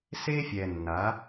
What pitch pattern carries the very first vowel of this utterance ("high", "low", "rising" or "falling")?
high